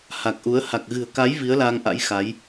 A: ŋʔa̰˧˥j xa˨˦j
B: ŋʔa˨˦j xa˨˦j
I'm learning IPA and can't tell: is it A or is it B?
A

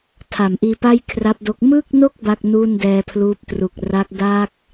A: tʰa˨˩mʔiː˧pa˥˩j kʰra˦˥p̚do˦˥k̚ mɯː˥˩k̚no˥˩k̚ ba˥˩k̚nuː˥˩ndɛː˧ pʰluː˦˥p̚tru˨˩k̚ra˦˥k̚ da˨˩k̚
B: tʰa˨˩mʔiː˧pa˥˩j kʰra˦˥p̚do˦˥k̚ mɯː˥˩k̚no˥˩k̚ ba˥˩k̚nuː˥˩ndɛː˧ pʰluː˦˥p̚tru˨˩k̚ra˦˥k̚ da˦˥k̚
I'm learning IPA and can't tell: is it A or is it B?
B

